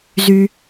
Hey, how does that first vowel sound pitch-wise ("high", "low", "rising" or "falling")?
high